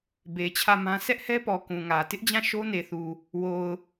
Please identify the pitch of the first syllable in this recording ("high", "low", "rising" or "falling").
low